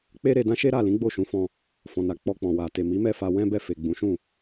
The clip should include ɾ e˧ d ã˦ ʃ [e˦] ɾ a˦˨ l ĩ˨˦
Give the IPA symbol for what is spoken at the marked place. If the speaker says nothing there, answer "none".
e˦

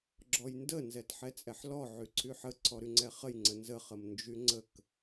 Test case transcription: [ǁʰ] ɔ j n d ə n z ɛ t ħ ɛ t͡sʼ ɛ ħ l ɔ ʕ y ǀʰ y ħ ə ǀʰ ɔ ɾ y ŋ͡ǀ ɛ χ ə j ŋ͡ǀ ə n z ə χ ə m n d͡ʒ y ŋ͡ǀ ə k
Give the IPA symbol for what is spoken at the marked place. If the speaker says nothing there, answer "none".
ɡ͡ǁ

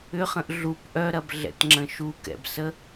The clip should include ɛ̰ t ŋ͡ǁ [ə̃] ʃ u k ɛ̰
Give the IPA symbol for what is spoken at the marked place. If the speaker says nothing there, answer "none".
ə̃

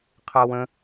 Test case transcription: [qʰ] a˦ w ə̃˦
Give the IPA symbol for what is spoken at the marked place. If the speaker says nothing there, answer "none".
qʰ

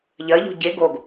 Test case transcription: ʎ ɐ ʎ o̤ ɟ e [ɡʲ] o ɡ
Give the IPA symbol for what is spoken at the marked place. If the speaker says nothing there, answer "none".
ɡ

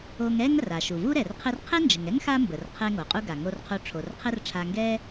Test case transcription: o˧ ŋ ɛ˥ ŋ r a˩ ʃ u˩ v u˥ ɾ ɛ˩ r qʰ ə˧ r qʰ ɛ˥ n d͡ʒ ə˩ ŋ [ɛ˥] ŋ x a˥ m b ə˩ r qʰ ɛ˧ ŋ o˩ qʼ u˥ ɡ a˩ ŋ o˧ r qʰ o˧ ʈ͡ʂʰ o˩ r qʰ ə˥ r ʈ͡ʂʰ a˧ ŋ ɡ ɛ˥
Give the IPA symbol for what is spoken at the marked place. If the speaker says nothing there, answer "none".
ɛ˥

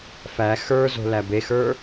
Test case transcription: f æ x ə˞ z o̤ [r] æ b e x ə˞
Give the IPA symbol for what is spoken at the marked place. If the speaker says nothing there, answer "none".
l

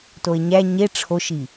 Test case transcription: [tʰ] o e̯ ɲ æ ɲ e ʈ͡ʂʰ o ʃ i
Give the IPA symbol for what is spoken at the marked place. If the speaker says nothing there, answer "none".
t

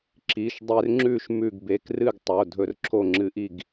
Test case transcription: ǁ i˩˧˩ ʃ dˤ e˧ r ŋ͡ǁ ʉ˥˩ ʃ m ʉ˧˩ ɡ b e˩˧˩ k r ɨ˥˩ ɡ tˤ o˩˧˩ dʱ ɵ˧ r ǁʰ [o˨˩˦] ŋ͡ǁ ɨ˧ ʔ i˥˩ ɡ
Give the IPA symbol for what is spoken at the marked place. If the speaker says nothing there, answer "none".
o˥˩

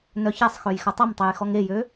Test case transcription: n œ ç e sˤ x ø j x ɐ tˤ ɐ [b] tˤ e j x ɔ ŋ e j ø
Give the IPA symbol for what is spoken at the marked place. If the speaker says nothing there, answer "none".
m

